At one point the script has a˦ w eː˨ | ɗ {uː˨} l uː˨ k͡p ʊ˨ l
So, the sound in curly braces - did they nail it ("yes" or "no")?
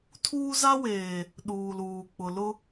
yes